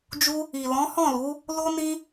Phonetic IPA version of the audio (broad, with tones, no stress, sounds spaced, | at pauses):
d͡ʒ u˦ | i˨ l ɔ̃˨˦ h ɔ̃˦˨ l u˨˦ | l o˦ n ĩ˦